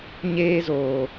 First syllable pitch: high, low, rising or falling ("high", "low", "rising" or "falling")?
high